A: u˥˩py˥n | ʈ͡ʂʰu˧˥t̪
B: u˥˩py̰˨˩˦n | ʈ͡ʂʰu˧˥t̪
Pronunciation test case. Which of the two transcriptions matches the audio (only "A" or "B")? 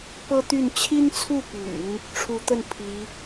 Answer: B